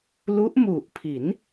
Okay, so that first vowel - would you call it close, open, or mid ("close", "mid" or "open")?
close